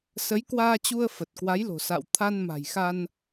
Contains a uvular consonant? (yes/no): no